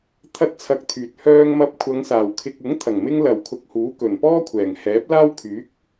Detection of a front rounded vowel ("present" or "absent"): present